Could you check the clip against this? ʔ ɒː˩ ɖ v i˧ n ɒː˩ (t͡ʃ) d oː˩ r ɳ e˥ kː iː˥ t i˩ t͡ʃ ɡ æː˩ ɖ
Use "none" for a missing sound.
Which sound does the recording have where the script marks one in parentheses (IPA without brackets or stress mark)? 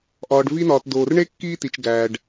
t